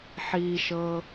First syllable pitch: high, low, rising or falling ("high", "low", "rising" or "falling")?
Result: low